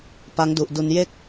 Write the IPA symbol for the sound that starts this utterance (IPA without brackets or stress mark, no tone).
p